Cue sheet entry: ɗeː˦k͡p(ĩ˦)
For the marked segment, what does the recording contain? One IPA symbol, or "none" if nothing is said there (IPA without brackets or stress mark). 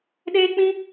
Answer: ĩ˦